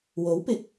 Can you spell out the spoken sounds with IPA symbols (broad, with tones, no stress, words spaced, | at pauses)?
wo˨˥wpɪ˨˥k̚